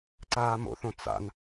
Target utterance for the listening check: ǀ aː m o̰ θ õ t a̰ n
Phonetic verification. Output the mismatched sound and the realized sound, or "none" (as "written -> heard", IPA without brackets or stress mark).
t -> t͡s